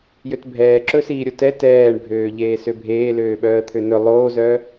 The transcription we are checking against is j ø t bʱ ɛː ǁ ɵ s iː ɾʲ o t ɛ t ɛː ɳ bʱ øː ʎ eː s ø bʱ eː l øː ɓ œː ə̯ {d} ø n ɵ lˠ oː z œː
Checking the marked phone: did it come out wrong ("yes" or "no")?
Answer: yes